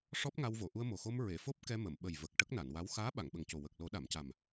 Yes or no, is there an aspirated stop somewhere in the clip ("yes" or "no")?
no